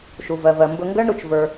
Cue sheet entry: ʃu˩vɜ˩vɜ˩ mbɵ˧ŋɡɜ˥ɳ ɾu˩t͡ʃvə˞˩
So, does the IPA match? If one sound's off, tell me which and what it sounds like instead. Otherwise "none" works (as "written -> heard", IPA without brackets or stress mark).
none